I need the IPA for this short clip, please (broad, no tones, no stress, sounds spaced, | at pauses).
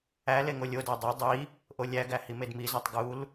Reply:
æ l e ŋ o lʲ o d æ dˤ e dˤ i | ʔ o lʲ æ ɡ æ h i m e d m i z æ tˤ ɡ u l